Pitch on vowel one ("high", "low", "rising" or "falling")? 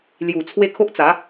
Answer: low